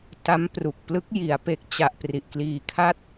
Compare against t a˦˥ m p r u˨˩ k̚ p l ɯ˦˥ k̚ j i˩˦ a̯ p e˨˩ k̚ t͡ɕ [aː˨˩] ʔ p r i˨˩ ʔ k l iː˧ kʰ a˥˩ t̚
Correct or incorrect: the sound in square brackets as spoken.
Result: incorrect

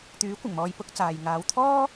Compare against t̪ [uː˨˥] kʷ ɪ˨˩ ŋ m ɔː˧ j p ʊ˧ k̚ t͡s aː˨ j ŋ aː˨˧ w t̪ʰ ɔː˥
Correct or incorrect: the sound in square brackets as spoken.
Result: incorrect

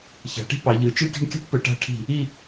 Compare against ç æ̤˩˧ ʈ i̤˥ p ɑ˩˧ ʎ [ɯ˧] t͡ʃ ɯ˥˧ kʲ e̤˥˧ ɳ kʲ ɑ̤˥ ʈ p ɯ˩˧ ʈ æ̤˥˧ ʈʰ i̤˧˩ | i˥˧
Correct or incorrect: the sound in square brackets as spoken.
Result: incorrect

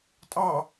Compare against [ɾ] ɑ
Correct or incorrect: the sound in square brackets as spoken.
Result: incorrect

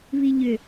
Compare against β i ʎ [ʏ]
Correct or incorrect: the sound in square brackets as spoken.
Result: correct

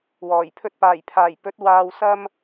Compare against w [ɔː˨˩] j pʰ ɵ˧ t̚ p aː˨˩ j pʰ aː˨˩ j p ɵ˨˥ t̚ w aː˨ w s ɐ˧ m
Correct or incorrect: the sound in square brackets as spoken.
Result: correct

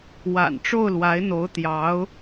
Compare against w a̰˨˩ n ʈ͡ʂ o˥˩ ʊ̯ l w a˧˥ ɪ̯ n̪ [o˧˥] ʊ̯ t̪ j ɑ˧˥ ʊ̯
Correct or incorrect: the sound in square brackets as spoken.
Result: correct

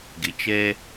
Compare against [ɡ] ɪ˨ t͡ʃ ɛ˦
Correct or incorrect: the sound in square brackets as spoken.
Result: correct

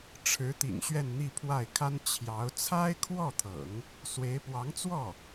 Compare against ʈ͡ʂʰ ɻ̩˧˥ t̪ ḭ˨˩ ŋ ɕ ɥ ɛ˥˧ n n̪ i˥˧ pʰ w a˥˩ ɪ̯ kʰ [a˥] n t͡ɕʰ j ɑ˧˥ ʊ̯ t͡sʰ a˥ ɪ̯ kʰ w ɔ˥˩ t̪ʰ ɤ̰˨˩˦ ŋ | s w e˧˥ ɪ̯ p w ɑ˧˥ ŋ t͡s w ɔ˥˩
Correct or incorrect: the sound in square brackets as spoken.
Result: correct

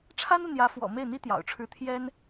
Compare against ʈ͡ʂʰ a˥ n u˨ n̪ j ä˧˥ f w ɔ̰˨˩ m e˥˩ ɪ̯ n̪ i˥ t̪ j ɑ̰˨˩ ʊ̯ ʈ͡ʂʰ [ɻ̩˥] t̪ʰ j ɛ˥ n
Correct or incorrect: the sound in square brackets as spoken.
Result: correct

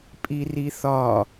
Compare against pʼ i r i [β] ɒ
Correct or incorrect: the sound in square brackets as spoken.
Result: incorrect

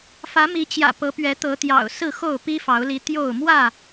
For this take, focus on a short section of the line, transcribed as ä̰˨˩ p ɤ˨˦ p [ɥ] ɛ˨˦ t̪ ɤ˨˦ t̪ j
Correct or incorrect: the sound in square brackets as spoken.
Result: correct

